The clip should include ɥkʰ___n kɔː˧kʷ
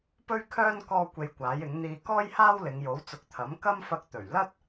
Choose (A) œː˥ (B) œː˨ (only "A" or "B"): A